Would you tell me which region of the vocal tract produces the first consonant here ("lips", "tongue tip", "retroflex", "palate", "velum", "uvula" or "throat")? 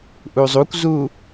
throat